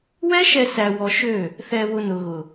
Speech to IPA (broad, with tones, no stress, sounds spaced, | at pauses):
w ɛ˦ ʃ ɛ˧ s æ˧ w ɔ˧ ʃ ø˦˨ | θ ɛ˧ β ʊ˧ n ʊ˨ ɣ ʊ˨